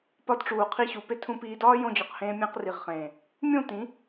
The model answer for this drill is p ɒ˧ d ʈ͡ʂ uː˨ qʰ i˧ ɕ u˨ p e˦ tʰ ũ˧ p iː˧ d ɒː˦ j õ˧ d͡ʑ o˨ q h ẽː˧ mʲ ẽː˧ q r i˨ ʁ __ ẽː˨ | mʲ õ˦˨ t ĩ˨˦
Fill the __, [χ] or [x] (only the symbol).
χ